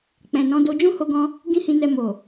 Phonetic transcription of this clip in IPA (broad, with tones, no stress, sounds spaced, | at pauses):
k͡p ɛ̃˨ n ɔ̃˨˦ d o˧ d͡ʒ ũ˦ h o˧ ɡ ɔ̃˧ | ɡ ĩ˦ h ĩ˧ n ɛ˧ m o˨